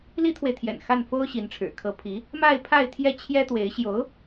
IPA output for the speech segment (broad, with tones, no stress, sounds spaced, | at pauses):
l i˥ t̪ʰ w e˨ ɪ̯ t̪ʰ j ɛ̰˨˩ n x a˥˩ n f o˥ ʊ̯ ɕ i˧˥ n ʈ͡ʂʰ ɻ̩˨˩ kʰ ɤ˧˥ pʰ i˧˥ | m a˥˧ ɪ̯ pʰ a˥˧ ɪ̯ t̪ʰ j ɛ˥˩ t͡ɕʰ j ɛ˥ t̪ w e˧˥ ɪ̯ ɕ j o˧˥ ʊ̯